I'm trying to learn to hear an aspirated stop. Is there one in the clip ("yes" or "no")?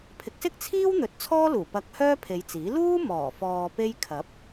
yes